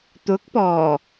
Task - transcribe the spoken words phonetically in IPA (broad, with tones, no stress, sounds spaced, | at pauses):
t̪ ʊ˨˥ k̚ p ɔː˨˩